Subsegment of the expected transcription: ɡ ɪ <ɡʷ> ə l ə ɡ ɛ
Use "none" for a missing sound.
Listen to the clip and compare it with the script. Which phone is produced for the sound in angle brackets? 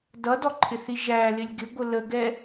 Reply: ɡʷ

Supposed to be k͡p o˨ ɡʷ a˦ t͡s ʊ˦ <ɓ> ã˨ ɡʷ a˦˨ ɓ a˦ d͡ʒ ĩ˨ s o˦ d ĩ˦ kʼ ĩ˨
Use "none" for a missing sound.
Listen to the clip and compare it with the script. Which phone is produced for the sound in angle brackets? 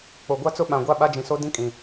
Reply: ɓ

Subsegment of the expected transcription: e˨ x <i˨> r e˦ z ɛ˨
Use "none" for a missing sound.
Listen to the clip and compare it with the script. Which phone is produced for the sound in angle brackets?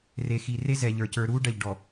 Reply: i˨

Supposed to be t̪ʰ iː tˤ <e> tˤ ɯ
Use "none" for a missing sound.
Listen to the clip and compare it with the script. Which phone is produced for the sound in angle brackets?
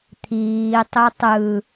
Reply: e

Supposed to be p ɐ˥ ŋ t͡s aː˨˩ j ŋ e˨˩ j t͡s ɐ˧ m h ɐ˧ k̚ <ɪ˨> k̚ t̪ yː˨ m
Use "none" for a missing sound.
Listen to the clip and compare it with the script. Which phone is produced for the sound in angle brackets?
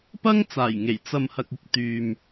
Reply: ɪ˧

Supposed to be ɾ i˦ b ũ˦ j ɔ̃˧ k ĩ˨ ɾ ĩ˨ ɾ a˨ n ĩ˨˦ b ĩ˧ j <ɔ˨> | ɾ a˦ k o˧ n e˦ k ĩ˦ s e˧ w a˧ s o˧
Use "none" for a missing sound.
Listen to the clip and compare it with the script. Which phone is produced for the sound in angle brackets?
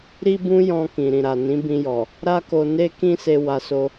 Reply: ɔ˨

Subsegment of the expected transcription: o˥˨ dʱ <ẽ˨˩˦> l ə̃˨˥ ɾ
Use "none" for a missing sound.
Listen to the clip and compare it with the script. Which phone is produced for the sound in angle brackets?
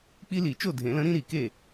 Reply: ẽ˨˩˦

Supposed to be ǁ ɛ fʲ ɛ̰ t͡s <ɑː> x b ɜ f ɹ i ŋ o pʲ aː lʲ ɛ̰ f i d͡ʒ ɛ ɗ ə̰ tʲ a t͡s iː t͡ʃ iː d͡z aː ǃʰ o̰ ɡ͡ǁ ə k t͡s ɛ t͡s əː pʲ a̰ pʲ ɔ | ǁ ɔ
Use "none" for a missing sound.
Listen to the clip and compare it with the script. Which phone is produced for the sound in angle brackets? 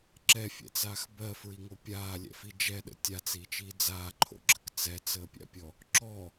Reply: aː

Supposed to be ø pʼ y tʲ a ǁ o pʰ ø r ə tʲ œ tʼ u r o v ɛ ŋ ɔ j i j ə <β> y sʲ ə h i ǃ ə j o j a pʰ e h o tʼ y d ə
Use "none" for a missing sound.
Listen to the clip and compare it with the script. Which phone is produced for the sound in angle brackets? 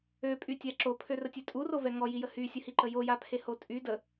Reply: h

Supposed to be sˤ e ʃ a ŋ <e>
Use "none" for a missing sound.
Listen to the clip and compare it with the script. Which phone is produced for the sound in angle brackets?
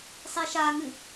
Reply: ɨ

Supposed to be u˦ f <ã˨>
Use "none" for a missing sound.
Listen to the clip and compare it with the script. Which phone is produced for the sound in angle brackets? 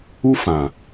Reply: ã˨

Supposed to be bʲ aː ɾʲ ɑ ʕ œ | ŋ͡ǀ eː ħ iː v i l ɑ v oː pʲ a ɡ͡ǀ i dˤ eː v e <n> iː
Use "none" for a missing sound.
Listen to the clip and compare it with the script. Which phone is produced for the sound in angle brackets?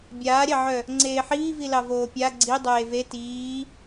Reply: t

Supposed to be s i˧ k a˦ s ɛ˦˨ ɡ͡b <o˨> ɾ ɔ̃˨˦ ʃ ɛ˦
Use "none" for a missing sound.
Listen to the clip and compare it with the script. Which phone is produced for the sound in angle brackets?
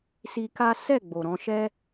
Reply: o˨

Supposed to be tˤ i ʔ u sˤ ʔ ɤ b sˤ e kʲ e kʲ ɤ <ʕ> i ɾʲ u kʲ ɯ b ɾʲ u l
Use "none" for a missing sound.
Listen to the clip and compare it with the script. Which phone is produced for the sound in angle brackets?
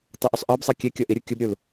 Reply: ʔ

